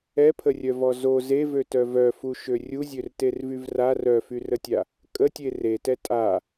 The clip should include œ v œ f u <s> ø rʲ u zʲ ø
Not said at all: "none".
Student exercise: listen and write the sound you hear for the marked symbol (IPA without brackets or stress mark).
ʃ